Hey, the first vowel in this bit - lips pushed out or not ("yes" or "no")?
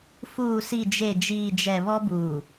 yes